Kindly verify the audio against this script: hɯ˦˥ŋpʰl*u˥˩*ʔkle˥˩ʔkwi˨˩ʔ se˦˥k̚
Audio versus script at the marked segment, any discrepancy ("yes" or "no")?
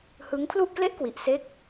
no